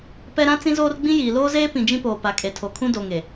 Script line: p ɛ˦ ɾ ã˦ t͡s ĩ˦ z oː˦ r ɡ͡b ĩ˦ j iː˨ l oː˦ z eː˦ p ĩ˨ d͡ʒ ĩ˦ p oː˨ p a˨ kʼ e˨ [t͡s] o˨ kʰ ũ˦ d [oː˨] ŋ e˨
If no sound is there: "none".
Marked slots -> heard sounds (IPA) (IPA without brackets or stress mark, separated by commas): tʰ, o˨